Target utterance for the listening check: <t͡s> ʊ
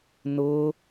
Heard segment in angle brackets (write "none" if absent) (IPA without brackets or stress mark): n